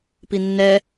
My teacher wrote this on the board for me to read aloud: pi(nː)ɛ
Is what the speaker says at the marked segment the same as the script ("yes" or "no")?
yes